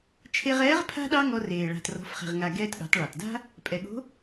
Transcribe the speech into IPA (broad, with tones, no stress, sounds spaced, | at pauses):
t͡ʃʰ e˧ ʁ ɛː˧˥ ʁ pʰ a̤˥ ɗ ɑ˥ ŋ ɔ˧ r eː˩ ɭ a̤˩ t r ɔ̤˩˧ f χ e̤˩ ʁ ŋ a˩ ɡ ɛː˧ t ɠ ɑ̤˩˧ t ɭ ɑ˩ t d a̤˥ | pʼ ɛ˩ ɠ o̤˧˥